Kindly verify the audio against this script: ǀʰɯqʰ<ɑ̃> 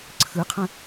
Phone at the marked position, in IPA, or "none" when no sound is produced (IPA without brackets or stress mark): ə̃